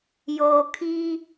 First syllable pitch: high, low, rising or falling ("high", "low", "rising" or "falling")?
low